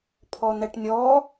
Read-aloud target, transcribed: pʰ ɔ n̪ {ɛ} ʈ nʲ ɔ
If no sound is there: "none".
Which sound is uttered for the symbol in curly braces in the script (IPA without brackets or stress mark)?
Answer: ɛ